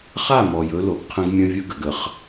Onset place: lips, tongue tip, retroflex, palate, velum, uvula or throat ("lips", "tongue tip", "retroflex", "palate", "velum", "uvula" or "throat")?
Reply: uvula